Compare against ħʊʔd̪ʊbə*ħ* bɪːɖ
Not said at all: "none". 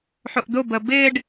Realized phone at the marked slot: none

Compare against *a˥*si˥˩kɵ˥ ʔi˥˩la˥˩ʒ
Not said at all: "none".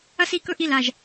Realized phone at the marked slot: ɐ˥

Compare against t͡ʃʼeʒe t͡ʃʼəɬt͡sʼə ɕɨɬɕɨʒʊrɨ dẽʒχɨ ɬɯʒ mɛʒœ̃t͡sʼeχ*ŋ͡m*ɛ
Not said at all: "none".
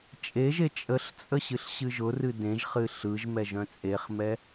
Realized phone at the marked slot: m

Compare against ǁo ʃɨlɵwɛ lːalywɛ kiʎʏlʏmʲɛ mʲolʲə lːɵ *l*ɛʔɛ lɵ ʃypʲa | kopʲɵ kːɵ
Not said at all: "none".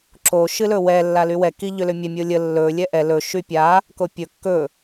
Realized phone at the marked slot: lʲ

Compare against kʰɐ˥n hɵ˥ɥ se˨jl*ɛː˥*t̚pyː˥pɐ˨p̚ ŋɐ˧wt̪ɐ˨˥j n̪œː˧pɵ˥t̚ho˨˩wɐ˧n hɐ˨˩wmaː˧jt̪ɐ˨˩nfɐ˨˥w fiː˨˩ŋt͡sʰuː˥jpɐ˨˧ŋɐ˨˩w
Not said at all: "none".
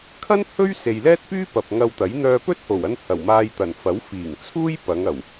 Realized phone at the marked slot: ɛː˥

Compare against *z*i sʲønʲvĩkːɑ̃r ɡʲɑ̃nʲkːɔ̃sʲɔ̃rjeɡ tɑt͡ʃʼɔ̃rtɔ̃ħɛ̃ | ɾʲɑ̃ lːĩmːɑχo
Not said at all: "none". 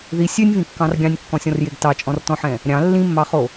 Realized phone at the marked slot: ð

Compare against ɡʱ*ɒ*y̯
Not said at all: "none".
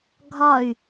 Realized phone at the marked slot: ɒ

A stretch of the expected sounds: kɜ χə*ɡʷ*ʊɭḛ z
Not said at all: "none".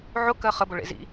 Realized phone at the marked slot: b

